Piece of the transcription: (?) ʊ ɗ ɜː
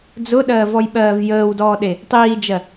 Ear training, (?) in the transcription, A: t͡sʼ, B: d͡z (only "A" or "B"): B